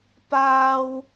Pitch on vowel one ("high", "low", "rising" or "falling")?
high